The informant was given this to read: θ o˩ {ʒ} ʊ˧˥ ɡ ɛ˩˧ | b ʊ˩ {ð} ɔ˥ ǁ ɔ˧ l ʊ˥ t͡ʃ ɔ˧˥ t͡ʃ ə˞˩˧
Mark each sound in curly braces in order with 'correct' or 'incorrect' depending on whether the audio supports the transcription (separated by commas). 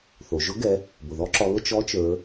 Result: correct, correct